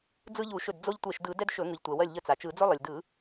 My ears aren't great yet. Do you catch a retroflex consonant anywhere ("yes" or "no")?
no